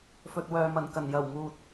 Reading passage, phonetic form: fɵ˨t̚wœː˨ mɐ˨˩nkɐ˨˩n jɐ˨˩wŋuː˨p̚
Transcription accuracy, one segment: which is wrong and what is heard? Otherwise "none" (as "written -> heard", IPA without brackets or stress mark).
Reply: p̚ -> t̚